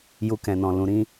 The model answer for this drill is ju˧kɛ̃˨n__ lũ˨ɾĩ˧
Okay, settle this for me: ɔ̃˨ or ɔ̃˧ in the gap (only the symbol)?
ɔ̃˨